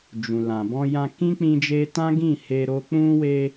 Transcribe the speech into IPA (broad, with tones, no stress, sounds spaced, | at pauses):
d͡ʒ ũ˨ l ã˨ b ɔ̃˧ j ã˧ k ĩ˦ k͡p ĩ˧ d͡ʒ e˧ t ã˦ ɡ ĩ˦˨ h e˧ ɾ o˧ k͡p ũ˧ w e˧